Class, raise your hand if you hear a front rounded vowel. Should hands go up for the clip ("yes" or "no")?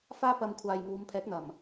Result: no